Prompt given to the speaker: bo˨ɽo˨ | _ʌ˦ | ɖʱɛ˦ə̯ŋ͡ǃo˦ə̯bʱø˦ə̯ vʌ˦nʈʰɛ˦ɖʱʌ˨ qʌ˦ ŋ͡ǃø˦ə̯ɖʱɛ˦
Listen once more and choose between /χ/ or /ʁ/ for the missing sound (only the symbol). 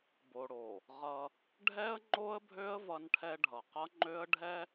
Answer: ʁ